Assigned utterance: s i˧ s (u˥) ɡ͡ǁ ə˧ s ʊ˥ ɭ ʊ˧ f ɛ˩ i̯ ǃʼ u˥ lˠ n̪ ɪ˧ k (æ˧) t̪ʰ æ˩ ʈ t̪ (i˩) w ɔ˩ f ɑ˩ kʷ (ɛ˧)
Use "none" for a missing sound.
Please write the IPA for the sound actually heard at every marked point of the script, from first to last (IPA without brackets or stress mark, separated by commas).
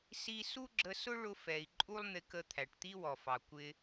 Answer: u˥, ə˧, i˥, ɪ˧